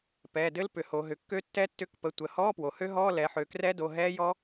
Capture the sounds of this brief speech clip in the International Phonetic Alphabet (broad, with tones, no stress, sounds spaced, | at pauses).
p ɛː˩˧˩ d ɘ˦˥ l p ʏ˩˧ h o˩˧ ɦ ʏ˩˧ kː ø˦˥ tː ɛ˦˥ tː ʏ˧˥˧ k p ə˩˧˩ tʷ ə˩˧ h ɔː˧˥˧ p w o˩ h ø˦˥ ɦ ɔː˧˥˧ l ɛ˩˧ ħ ø˩˧ k r ɛ˦˥ d o˩˧˩ ɦ ɛː˦˥ j ɔ˦˥